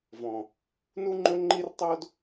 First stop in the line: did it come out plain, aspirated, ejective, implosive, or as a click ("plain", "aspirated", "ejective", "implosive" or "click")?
click